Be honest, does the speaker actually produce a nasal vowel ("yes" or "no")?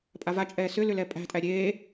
no